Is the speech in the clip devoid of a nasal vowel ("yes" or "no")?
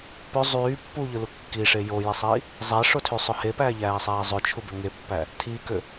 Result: yes